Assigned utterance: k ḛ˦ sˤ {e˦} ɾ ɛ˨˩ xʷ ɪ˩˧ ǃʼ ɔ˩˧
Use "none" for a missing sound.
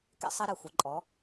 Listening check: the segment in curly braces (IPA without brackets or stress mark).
e˦